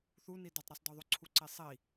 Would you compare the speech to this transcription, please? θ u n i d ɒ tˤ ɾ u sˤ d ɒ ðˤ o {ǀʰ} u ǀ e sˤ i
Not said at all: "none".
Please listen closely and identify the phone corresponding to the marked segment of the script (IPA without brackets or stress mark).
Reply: ǀʰ